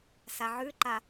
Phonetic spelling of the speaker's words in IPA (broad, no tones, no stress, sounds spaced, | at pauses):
s a ʕ ʉ ǃ a